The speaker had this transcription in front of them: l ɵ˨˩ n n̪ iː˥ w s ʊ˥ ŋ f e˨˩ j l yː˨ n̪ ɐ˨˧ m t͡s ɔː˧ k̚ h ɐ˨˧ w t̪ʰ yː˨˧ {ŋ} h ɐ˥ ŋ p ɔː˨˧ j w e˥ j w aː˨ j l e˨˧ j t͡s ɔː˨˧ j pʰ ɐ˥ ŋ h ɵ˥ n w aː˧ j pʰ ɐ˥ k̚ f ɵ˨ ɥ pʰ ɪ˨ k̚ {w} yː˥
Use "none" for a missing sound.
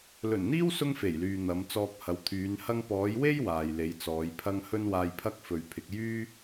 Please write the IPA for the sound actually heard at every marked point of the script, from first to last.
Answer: n, j

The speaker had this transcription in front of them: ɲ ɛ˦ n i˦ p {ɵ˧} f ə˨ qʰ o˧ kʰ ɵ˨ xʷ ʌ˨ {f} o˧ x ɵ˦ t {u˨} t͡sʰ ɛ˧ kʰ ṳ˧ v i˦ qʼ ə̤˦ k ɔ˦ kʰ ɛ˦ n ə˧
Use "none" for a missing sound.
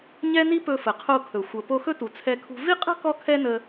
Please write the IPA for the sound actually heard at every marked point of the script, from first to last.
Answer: ɵ˧, p, u˨

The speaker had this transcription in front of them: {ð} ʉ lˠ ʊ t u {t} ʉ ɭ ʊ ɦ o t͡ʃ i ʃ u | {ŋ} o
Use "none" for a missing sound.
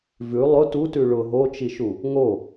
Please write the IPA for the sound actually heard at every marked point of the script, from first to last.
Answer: v, t, ŋ

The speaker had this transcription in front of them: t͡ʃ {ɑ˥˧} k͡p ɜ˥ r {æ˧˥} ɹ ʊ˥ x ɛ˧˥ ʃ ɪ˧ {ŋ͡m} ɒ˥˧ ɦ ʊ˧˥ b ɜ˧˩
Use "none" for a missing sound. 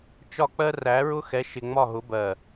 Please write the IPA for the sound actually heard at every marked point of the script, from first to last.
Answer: ɒ˥˧, æ˧˥, ŋ͡m

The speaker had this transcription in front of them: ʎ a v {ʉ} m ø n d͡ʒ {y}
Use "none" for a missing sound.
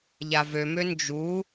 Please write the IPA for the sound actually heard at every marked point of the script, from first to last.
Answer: ø, u

